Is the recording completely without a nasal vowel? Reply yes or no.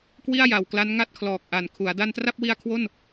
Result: yes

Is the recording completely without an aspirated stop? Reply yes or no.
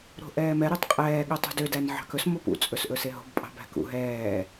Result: yes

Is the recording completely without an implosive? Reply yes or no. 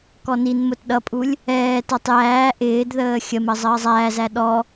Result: no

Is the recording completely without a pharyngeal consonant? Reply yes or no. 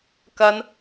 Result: yes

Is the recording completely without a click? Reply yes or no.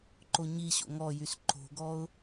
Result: no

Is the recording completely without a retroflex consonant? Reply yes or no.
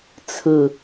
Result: yes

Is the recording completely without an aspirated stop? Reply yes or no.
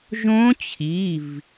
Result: no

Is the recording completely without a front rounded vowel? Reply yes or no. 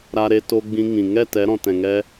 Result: yes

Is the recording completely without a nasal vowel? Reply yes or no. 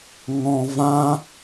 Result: no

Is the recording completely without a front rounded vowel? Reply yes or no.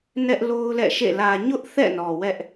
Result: yes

